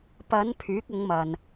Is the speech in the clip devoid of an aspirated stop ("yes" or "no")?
no